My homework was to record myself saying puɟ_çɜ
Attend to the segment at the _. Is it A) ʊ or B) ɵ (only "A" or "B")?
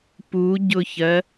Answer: A